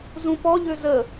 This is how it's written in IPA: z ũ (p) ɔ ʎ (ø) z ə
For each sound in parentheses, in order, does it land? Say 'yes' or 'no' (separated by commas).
yes, yes